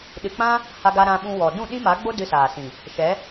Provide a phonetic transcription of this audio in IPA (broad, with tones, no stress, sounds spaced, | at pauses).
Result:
ɗ ɨ˨ k͡p ã˦ | h a˧ ɡ a˧ ɾ ã˧ ɓ ũ˧ w ɔ˨ d ũ˦˨ ɗ ĩ˦ m a˨˦ ɡ͡b o˦ d ɨ˧ s aː˨ s ĩ˨ | ʃ ɛ˨˦